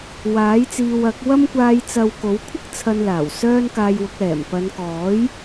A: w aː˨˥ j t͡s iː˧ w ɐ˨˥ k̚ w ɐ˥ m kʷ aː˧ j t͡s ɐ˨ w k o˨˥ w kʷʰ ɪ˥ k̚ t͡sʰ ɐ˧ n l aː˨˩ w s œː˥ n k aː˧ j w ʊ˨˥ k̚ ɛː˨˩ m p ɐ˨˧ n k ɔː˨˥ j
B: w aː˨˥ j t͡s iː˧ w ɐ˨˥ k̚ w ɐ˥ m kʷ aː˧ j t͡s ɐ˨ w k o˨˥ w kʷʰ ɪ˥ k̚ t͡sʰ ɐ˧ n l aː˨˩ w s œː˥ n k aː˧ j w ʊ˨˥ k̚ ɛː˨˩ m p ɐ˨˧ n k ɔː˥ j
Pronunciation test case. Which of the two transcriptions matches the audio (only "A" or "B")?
A